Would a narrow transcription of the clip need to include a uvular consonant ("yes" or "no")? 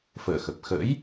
no